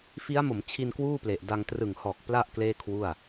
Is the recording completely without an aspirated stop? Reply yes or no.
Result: no